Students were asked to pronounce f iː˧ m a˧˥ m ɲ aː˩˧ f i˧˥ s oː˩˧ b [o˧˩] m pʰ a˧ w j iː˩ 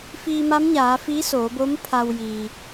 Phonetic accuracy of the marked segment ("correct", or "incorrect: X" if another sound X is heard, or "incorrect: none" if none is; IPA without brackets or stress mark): incorrect: o˧˥